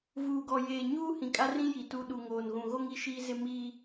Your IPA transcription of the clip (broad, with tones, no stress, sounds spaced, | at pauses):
v uː˨ ɡ ɔ˨ j eː˨ ɲ uː˦ h ĩ˨ kʼ a˦ r ĩ˦ j i˨ t u˦ ɗ u˨ ŋ oː˨ n ɣ ũ˨ ɣ o˦ ŋ i˦ ʃ iː˦ z ɪ˦ m iː˦